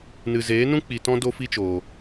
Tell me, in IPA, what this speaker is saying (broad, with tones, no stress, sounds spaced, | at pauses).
n ɨ˨ z eː˨˦ n ũ˦ k͡p i˨ t ɔ̃˦ d o˦ f i˦ t͡ʃ oː˨